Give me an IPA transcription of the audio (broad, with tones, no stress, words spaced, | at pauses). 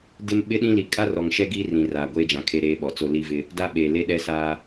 dɪ˦m ɓɪ˦ɗĩ˦li˨ kʼa˦rɔ˨ŋʃɛ˦ ɡiː˦rĩ˨ raː˨ɡʷeː˦d͡ʒã˨ kʰe˦ɾeː˦ɓɔ˨t͡so˦ li˦vɪ˦ | da˦ɓeː˨ le˦ɗɛ˦saː˦